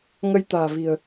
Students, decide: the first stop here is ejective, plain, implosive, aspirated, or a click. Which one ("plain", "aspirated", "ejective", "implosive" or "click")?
plain